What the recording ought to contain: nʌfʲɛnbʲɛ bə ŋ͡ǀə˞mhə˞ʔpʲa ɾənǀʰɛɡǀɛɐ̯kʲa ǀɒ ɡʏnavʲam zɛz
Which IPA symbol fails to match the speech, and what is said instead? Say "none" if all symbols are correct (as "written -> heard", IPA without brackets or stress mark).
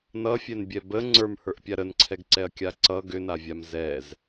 ɒ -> ʌ